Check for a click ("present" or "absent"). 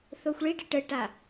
absent